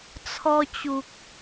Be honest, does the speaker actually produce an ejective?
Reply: no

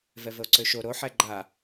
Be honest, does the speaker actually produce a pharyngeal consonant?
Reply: yes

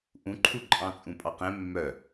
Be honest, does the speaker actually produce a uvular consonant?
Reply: yes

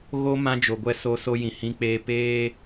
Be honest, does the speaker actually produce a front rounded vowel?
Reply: no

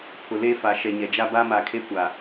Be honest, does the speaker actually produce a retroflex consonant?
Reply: no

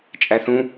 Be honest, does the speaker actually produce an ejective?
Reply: yes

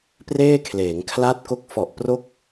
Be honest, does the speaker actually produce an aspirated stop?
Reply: yes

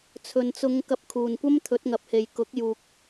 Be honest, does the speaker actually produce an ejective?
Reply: no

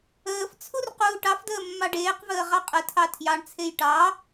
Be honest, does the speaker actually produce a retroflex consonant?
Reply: yes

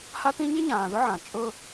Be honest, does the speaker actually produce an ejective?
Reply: yes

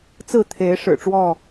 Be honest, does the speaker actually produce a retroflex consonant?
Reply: yes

